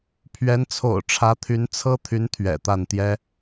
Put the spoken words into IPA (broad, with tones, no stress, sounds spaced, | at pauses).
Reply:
pʰ ɥ ɛ˧˥ n t͡sʰ o̰˨˩ ʊ̯ ʈ͡ʂʰ ä˧˥ t̪ʰ y˧˥ n t͡sʰ ɤ˥ t̪ʰ y˧˥ n t̪ʰ ɥ ɛ̰˨˩ t̪ a˥˩ n t̪ j ɛ˥